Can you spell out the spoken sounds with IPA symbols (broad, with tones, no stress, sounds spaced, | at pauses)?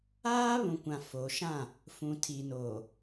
aː˦ β ũ˨ kʷ ã˨ f o˨ ʃ ã˦˨ | f ũ˨ tʰ i˨ n oː˨